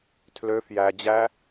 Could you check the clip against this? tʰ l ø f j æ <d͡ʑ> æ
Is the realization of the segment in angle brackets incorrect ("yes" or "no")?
no